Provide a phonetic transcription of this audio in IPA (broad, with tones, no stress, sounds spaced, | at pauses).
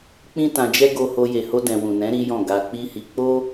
k͡p ĩ˦ t ã˧ d͡ʒ ɛ˦ ɡ o˧ h o˧ j e˨ h o˧ d ɛ̃˨ w ũ˨ n ɛ̃˨˦ ɾ i˦ j ɔ̃˦˨ ɡ a˧ k͡p i˦ h i˧ k͡p o˦